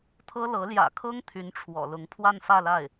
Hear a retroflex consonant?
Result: yes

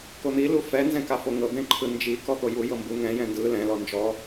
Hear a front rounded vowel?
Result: no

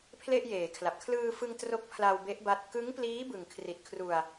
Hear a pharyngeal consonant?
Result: no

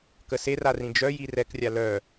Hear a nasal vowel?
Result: yes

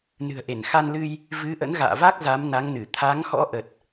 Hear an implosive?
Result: no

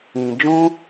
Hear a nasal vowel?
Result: yes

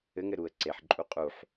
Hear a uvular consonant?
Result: yes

